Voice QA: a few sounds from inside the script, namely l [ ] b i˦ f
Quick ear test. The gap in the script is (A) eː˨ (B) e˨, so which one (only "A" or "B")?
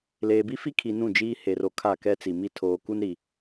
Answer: A